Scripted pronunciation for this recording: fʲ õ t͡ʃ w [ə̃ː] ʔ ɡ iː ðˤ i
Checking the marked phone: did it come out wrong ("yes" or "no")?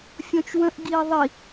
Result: yes